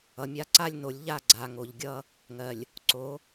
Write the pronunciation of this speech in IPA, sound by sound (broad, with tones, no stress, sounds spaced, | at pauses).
ʌ˨ mʲ a˦ ǀ a˦ lʲ n o˨˦ lʲ ʎ a˦˨ ɡ͡ǀ a˨ ŋ o˨ ʎ ɡʲ ʌ˦ | ŋ ɜ˨ lʲ | ǀ o˨˦